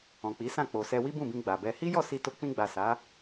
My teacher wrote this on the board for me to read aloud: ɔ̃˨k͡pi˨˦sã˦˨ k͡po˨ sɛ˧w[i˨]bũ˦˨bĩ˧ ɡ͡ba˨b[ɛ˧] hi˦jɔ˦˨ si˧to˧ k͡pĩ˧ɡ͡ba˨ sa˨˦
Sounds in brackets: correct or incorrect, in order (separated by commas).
incorrect, correct